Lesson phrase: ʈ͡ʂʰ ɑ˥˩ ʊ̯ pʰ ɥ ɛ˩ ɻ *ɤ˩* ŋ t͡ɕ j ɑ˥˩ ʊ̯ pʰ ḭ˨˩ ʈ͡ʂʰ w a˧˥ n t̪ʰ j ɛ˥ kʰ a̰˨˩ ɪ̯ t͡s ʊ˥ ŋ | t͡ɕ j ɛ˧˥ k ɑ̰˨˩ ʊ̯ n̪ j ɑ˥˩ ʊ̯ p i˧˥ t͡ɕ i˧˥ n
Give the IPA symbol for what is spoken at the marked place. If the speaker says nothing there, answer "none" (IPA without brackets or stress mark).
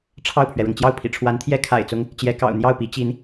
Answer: ɤ˩